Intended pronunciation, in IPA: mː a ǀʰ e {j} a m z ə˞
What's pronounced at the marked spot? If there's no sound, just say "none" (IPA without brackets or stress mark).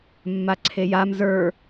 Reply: j